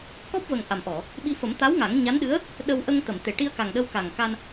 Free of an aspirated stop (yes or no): yes